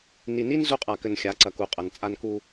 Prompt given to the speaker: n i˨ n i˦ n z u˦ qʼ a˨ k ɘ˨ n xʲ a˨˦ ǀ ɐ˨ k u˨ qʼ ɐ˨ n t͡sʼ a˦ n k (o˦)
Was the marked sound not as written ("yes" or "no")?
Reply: yes